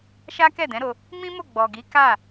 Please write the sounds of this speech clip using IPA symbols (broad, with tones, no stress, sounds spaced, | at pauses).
ʃ a˦ k ɛ˦˨ d ɛ̃˨˦ ɾ o˧ | m ĩ˦ m o˦˨ ɡ͡b ɔ˨ ɡ i˨˦ k a˦˨